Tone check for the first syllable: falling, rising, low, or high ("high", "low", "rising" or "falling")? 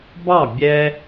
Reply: falling